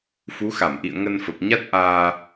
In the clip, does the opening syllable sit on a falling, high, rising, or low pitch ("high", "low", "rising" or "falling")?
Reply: rising